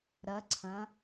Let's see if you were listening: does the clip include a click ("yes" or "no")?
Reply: yes